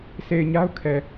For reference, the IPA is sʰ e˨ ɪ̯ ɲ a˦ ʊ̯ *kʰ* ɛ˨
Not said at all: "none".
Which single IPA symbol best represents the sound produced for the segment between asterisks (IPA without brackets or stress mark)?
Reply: kʰ